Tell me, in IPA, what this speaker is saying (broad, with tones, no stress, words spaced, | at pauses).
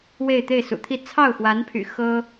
we˥˧ɪ̯t̪e˥˩ɪ̯sṵ˨˩t̪ʰi˥˧ t͡sʰɑ˥˩ʊ̯xwa˧˥npʰy̰˨˩ xɤ˥